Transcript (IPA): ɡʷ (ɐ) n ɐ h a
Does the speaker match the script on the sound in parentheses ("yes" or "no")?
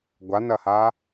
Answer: no